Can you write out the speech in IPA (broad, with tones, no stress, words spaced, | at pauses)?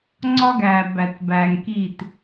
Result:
ŋ͡ǀɒ˦ɡæː˨bæ˨t bæː˨ŋkiː˦˨t